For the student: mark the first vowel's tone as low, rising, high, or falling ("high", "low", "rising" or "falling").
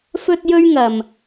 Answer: high